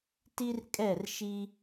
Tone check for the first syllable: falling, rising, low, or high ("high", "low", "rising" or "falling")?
high